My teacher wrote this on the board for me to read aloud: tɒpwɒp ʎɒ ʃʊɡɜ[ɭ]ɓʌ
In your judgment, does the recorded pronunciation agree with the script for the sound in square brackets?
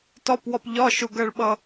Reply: yes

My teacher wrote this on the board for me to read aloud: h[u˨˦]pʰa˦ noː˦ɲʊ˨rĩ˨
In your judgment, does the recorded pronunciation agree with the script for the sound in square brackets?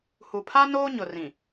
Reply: no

